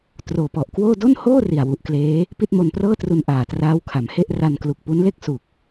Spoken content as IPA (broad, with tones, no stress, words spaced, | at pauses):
troː˨˩pɔ˨˩ʔkwoː˥˩ do˥˩nhoː˥˩ ri˨˩a̯wu˨˩ʔkleː˦˥ | pi˥˩t̚mo˧nprɤː˥˩tru˧n ʔaː˨˩traː˦˥wkʰa˩˦mhe˥˩ʔ ra˧nklu˨˩k̚pu˦˥nle˥˩k̚ su˨˩k̚